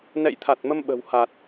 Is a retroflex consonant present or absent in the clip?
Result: absent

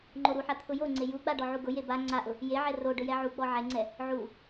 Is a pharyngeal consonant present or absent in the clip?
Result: present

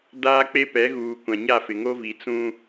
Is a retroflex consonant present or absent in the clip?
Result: absent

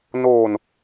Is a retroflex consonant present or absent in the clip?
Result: absent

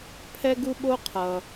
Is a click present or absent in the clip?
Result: absent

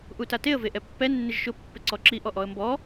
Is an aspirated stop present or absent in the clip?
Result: absent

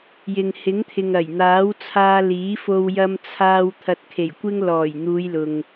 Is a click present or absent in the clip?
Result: absent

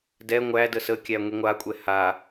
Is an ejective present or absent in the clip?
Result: present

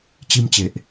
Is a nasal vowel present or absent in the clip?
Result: absent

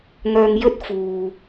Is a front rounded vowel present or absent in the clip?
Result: present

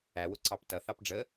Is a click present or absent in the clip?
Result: present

